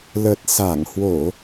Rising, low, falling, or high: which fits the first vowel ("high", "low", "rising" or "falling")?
low